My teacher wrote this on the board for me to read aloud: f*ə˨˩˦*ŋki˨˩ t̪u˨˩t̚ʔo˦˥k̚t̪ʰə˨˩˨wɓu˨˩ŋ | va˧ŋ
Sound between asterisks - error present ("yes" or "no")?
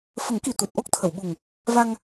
no